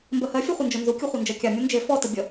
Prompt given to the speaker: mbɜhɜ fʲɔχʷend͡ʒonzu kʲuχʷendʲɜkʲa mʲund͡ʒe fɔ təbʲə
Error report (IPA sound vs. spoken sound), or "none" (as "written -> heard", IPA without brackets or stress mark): dʲ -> d͡ʒ